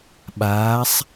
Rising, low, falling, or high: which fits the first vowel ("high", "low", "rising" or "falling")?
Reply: rising